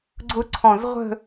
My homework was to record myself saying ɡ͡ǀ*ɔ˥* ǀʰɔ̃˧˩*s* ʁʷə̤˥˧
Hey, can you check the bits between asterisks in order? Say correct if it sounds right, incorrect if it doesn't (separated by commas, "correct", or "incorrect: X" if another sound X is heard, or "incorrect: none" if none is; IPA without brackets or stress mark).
incorrect: ʊ˥, incorrect: z